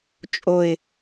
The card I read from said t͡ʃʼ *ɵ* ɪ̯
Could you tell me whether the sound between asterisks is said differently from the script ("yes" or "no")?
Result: yes